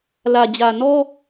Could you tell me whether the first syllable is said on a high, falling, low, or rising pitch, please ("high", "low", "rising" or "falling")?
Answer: low